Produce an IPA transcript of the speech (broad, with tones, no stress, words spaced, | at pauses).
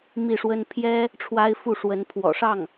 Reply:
mi˥˩ʂwə˥n pʰjɛ˥ | ʈ͡ʂʰwa˥ɪ̯fu˥˩ʂwə˧˥n pʰwɔ̰˨˩ʂɑ˥˩ŋ